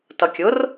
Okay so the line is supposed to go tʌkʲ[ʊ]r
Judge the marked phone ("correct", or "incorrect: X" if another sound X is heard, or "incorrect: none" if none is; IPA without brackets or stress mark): correct